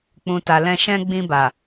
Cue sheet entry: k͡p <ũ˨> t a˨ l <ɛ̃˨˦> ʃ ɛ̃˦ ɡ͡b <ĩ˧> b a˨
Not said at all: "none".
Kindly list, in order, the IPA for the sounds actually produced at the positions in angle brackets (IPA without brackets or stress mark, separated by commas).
ũ˨, ɛ̃˧, ĩ˧